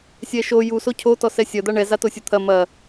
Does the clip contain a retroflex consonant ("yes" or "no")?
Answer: yes